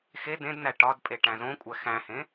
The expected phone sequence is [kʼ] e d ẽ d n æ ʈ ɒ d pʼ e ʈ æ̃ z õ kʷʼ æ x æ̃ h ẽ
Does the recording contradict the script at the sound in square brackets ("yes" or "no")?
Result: yes